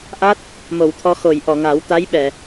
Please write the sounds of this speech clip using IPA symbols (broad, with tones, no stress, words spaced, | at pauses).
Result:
ʔa˦˥t̚ | mo˨˩˨wt̪ʰɔ˧xo˨˩˨j ʔɔ˨˩˨ŋa˨˩˦wt̪a˧˥jɓɛ˨˩˨